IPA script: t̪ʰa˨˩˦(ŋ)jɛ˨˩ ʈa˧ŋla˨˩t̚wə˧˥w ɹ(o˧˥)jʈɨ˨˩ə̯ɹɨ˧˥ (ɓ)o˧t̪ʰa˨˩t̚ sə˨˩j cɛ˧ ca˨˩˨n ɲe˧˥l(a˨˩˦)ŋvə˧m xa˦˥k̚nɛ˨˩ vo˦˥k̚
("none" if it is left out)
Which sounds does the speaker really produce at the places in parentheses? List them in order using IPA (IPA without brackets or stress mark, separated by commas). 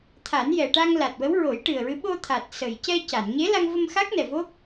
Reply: n, o˨˩˦, ɓ, a˧